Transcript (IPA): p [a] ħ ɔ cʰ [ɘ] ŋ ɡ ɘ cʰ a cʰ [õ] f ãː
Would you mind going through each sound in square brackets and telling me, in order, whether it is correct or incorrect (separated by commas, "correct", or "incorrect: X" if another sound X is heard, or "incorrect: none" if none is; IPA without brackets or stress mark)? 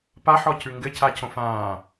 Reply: correct, incorrect: ʉ, correct